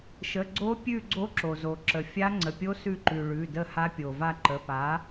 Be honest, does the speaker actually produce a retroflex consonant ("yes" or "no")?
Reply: yes